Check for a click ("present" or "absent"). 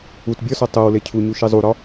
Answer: absent